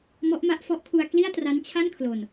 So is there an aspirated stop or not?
yes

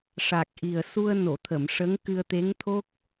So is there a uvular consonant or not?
no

